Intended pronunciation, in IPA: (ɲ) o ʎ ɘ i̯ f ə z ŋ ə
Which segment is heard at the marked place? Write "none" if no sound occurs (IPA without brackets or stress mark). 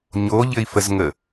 ɲ